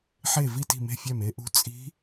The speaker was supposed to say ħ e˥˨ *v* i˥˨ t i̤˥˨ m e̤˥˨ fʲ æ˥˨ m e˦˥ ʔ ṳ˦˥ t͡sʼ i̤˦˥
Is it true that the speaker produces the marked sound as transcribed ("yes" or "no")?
yes